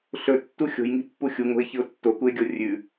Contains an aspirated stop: no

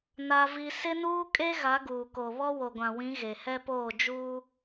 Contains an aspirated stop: no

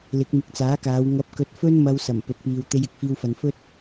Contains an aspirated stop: no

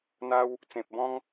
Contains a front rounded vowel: no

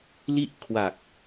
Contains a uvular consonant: no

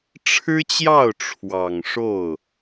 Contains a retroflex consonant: yes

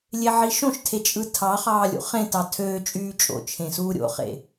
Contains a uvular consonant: yes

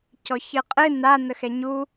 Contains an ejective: yes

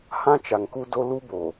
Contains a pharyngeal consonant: no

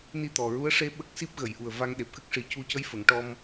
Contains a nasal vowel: no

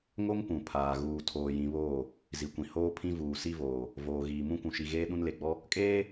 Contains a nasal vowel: yes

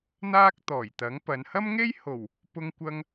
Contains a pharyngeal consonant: no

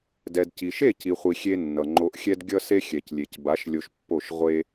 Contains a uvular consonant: yes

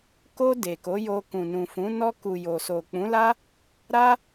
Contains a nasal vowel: yes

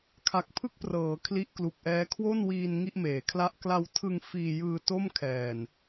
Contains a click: no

